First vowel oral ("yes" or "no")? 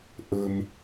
yes